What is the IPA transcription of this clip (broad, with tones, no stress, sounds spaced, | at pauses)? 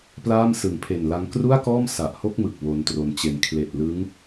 p l aː˥˩ m s ɯ˨˩ ŋ pʰ e˨˩ n l a˦˥ ŋ k r u˥˩ a̯ k ɔː˥˩ m s a˨˩ ʔ h o˥˩ k̚ m ɯ˨˩ k̚ w o˦˥ n t r o˧ n t͡ɕ e˧ n kʰ l e˨˩ ʔ l ɯ˦˥ ŋ